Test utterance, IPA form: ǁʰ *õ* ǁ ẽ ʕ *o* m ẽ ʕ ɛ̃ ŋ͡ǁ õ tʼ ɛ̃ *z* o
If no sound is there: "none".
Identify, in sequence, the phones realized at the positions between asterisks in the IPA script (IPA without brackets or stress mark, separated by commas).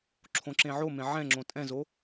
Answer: õ, o, z